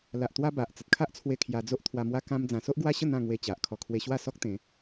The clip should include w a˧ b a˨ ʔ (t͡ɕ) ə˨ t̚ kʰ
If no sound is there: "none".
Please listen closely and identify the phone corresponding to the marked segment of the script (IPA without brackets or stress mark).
t͡s